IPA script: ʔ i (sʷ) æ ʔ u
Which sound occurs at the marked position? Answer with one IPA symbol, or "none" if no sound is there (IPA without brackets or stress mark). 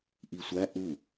sʷ